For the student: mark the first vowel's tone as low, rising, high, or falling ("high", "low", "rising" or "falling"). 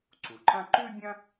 low